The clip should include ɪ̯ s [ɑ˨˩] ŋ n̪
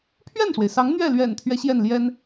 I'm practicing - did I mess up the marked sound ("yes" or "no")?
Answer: yes